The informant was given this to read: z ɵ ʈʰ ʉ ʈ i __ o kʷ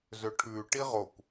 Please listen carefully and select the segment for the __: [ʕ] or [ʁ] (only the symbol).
ʁ